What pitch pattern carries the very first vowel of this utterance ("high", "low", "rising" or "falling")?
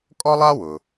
high